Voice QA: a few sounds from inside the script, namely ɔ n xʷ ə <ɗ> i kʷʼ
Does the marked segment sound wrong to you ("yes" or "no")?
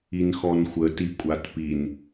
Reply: yes